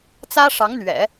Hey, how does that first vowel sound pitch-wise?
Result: high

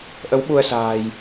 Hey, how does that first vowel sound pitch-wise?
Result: rising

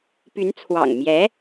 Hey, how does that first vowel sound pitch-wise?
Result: rising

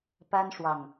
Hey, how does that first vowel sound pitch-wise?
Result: high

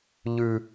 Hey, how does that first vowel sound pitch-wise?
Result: high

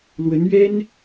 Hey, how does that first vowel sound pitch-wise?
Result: rising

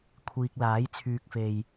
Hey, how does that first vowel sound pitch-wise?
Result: low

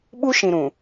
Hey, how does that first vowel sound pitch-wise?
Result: high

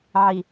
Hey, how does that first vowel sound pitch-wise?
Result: low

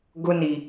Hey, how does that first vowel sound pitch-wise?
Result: high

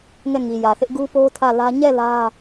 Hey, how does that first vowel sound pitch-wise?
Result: falling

